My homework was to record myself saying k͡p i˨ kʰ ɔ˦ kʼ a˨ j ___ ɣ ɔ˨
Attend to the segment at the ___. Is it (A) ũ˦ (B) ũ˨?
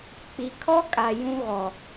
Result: A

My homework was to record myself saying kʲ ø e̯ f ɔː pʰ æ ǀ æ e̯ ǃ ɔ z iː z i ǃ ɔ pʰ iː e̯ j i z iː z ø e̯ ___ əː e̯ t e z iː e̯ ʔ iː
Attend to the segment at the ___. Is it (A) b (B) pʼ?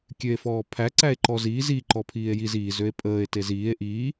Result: B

